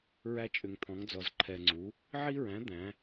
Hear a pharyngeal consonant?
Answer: yes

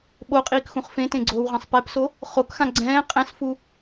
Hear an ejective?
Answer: yes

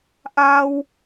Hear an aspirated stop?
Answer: no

